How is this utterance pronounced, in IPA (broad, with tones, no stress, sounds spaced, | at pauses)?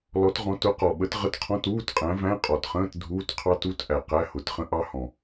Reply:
l ɔ˨˥ t ʁ ɔ̃˨˥ t ʊ˨˥ q ɔ˨˩ ɓ ə˨˥ t ʁ ə˧˥˧ t qʰ ɔ̃˧˥˧ t uː˧˥˧ t qʼ æ̃˨˥ v æ̃˧˥˧ qʼ ɔ˨˩ t χ ə̃ː˧˥˧ t dʱ uː˧˥˧ t qʰ ɑ˦˥ t u˧˥˧ t ʔ æ˨˩ q æ˧˥˧ h ʊ˨˥ t χ ə̃˦˥ ʔ ɑ˦˥ h ɔ̃˨˩